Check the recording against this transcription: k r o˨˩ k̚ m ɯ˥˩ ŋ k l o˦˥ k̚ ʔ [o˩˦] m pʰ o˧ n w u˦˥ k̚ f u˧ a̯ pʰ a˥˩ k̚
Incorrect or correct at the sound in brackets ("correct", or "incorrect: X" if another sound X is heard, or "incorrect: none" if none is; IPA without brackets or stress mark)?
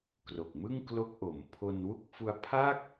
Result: correct